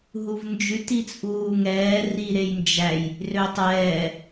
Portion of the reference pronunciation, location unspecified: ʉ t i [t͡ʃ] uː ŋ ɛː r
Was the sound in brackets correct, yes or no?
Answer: no